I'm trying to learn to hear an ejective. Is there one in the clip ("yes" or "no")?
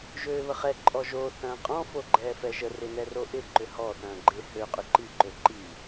yes